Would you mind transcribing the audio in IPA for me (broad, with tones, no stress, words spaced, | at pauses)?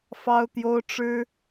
fɑ˦ʊ̯t̪jo˦ʊ̯ ʈ͡ʂɻ̩˦